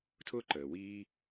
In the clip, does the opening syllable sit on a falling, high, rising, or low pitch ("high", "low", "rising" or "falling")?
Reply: high